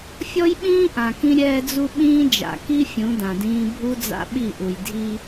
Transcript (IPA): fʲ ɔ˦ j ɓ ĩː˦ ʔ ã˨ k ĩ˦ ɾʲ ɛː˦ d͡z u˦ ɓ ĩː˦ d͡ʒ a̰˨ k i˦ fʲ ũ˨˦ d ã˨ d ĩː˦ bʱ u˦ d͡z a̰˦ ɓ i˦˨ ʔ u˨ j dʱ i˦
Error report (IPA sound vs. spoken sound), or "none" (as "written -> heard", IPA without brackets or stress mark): none